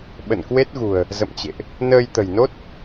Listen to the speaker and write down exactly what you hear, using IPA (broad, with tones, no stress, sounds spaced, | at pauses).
ɓ ə̰˧˨ n k w e˦˥ t̚ ɣ ṳ˨˩ ə̯ | z ə̰˧˨ m t͡ɕ ḛ˧˨ ʔ | n əː˧ j t̪ ə̤˨˩ j n o˦˥ t̚